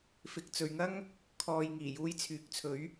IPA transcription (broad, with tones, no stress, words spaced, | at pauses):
fɪ˨k̚t͡sɵ˨ɥŋɐ˥ŋ | kʰɔː˧j ŋiː˨˩juː˧jt͡sʰyː˨˥k̚t͡sʰɵ˨˥ɥ